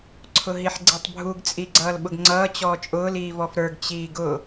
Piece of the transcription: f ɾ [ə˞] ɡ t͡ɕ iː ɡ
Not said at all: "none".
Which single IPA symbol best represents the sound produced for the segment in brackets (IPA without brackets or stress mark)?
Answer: ə˞